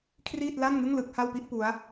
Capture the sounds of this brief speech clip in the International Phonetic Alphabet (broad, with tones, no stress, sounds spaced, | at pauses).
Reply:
kʰ r iː˥˩ t̚ l a˥˩ n ŋ ɯ˥˩ ŋ l ɯ˥˩ k̚ h a˥˩ w p i˥˩ ʔ p u˦˥ a̯